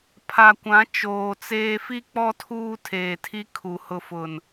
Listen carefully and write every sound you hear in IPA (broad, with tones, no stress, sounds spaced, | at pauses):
pʰ a˨ kʷ ã˨˦ t͡ʃ oː˨ t͡s eː˦ f i˦ k͡p ɔ˦ tʰ uː˦ tʰ eː˨ tʰ i˦ kʰ u˨ h ʊ˨ f ʊ˨ n